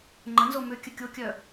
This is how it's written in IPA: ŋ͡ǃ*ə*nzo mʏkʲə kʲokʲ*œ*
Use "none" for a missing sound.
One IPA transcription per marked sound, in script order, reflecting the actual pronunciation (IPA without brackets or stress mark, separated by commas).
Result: ə, œ